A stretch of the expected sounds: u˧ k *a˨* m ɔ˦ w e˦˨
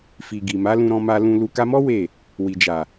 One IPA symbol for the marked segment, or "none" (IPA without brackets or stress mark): a˧